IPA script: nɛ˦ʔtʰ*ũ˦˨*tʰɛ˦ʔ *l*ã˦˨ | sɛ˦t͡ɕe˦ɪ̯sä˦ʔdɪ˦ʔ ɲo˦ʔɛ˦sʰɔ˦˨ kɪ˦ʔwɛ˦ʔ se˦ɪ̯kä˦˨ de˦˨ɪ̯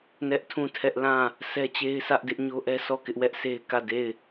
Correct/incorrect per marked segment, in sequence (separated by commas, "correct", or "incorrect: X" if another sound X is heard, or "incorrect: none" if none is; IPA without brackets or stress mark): correct, correct